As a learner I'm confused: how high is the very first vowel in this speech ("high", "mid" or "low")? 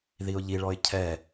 high